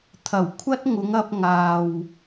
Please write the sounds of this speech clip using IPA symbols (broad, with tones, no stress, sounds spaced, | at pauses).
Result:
t̪ʰ ɐ˨˩ w kʷʰ ɐ˥ t̚ ŋ ʊ˨˧ ŋ ɐ˧ p̚ ŋ aː˨ w